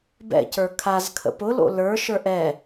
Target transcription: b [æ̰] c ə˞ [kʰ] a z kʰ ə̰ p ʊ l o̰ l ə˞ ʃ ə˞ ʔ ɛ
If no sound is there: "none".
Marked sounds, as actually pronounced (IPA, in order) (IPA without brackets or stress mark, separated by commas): ɛ̰, kʰ